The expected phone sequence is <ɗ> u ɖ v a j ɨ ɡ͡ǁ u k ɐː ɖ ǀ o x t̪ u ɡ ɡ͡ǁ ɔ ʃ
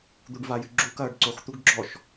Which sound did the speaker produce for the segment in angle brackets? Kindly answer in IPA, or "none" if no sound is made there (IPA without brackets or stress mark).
d̪